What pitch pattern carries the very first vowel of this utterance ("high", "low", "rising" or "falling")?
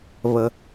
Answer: low